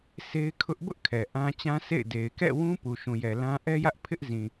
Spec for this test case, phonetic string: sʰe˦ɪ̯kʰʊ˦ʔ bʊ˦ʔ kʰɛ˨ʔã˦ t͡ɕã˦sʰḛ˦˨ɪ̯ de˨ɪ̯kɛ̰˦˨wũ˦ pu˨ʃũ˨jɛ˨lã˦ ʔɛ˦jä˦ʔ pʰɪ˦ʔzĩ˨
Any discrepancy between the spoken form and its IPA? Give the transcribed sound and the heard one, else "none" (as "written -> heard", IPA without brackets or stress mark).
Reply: none